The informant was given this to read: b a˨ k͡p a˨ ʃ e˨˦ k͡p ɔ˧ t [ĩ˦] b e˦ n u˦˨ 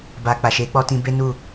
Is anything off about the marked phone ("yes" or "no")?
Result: yes